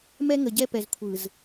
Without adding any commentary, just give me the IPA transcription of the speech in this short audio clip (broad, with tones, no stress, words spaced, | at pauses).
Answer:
mɛ˦ŋə˨ɟɛ˦pɛ˨z kʷʰɯ˨z